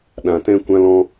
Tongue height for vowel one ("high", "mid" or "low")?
low